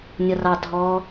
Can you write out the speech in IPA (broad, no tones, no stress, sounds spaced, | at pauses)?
nʲ ʌ r ɑ dʱ ɔ